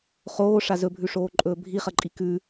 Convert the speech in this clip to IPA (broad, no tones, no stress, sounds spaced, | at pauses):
χ oː ʂ a z ɵ bʱ ʉ ʂ oː ǃʼ ɵː bʱ i χ ɐ ǃʼ i k ʉ